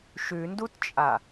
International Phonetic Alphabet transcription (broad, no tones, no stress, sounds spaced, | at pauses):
ʃ ʉ n d u t t͡ʃʼ a